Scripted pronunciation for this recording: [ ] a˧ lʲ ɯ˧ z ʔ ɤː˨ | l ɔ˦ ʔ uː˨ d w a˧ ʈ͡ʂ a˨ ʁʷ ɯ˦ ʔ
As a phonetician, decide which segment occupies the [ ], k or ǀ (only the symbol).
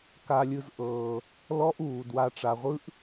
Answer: k